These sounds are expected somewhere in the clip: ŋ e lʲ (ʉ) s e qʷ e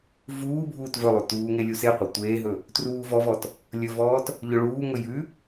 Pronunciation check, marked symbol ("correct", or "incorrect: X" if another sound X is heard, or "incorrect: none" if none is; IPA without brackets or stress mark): incorrect: u